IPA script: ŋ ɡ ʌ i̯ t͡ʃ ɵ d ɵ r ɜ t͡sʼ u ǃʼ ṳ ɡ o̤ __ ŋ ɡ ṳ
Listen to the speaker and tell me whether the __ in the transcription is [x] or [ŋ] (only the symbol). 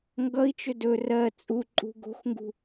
x